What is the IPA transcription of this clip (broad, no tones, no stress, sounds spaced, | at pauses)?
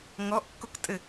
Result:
ŋ ɔ ʔ kː o k tʼ ɘ